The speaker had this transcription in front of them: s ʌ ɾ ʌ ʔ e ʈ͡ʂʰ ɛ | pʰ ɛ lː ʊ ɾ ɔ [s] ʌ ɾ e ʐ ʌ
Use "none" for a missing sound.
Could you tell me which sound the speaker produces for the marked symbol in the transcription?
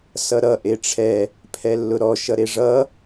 ʃ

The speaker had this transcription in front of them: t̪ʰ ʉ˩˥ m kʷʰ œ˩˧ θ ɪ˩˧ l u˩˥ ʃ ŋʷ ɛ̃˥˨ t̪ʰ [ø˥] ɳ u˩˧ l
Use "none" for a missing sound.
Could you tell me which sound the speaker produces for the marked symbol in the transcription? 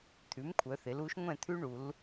ʉ˥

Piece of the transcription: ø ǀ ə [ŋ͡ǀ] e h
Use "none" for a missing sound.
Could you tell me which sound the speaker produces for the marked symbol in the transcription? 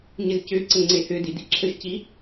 ŋ͡ǀ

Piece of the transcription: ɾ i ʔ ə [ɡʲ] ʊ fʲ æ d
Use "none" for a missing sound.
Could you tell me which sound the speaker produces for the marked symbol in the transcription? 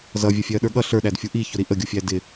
ɡʲ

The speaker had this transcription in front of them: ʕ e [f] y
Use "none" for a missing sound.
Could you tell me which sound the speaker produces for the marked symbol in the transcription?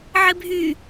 bʱ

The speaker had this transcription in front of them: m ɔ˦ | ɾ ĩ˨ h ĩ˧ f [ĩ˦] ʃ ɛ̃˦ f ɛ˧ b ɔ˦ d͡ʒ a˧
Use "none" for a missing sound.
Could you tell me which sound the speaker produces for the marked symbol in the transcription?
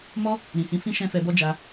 ĩ˦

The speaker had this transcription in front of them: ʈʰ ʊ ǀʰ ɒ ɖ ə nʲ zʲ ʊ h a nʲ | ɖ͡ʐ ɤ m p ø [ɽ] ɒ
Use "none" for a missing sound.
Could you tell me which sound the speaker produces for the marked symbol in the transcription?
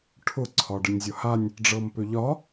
ʎ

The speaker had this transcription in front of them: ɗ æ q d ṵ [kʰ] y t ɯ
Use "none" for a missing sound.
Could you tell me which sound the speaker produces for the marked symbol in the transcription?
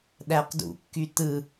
kː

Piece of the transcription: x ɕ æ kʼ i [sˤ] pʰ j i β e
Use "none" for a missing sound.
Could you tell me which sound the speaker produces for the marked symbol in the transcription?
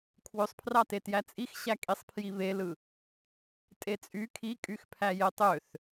sˤ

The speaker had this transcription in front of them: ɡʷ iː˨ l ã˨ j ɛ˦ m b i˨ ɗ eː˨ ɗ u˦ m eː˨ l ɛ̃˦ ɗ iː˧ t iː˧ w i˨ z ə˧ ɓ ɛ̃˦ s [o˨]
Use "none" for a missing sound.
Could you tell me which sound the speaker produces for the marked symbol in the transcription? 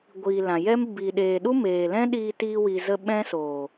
oː˨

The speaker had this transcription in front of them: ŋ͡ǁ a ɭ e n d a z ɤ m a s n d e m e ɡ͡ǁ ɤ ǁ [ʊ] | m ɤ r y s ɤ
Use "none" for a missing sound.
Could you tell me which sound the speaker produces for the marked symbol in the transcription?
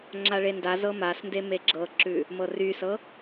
ʉ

